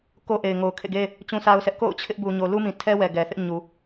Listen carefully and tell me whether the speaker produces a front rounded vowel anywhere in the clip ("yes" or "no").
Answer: no